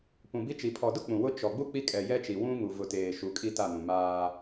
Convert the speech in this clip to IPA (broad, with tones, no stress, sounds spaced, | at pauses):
p ũ˨ b i˦ t͡ʃ i˨ pʰ ɔ˨ d ʊ˦ k͡p ũ˨ w ʊ˦ t͡ʃ ɔ˨ ɡ͡b u˦ k͡p i˦ kʼ ɛ˨ j ɛ˦ t͡ʃ i˨ w ũ˦ ŋ u˨ v ʊ˨ t eː˨ ʃ u˨˦ kʼ i˦ t a˦˨ n ũ˨ m aː˦